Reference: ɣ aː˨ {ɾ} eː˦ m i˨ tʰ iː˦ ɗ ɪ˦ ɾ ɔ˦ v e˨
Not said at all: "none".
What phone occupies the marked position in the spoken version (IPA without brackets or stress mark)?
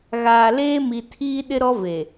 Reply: l